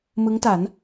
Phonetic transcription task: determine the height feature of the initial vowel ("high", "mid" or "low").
high